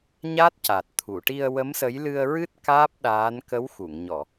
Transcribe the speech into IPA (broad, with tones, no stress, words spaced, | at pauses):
ɲa˦˥t̚ca˨˩t̚ t̪ʰu˨˩˨ʈi˧ə̯wə˧˥msə˧˥j lɨ˧ə̯ɹɨ˦˥t̚ kaː˦˥p̚ ɗaː˧˥n kə˧˥wxu˨˩˨ŋɲɔ˨˩˨